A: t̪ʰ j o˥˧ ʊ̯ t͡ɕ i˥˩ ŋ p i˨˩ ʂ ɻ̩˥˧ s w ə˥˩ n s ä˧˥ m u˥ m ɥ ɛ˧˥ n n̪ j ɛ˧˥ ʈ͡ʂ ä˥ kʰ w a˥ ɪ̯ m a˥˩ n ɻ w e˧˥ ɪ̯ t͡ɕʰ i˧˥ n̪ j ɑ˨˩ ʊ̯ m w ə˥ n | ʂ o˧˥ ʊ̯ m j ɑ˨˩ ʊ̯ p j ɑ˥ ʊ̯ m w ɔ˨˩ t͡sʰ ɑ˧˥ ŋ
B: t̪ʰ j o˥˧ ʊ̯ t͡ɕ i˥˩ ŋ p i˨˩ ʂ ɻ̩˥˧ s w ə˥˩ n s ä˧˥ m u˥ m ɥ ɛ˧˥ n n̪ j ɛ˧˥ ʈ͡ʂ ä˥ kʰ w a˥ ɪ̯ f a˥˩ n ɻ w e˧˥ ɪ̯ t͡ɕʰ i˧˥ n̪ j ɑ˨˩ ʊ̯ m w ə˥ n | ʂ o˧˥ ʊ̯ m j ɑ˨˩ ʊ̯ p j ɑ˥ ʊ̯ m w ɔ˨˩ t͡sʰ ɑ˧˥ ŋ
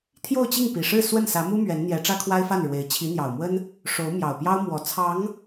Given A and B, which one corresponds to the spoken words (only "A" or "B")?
B